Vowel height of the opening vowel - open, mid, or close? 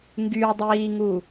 close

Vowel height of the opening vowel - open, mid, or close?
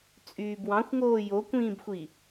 close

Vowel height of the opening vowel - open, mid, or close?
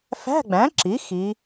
open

